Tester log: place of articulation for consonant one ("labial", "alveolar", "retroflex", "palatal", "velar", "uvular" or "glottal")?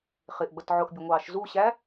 uvular